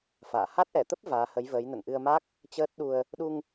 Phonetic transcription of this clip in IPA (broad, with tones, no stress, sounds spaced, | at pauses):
f a̰ː˧˨ h a˦˥ t̚ ʔ ɛ˧˩ t̪ ə˦˥ p̚ v aː˨˦ h ə˨˦ j v əː˨˦ j n ə̰˧˨ n ʔ ɨ˧ ə̯ m a˦˥ k̚ | t͡ɕ əː˦˥ t̚ ɗ u˧ ə̯ | ɗ u˧ ŋ